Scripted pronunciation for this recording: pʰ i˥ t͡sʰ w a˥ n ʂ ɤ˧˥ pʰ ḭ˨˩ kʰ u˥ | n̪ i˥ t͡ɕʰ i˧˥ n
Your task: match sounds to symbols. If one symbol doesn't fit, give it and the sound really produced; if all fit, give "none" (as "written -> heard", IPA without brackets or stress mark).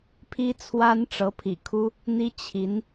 ʂ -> ʈ͡ʂ